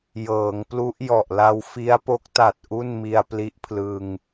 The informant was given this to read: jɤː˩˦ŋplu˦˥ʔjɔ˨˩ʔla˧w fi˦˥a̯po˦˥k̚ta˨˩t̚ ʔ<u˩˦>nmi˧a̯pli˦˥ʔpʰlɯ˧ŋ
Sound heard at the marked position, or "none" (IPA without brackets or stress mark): u˥˩